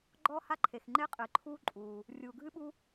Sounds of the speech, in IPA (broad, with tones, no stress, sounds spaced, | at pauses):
ɡ͡ǃ ɔː˥ h a˥ ǃʰ e˩ x ŋ͡ǃ e˥ qʼ ɨː˩ ǃʰ uː˥ ǃʼ uː˩ | rʲ uː˩ ɡʱ ɨ˥ ɓ u˥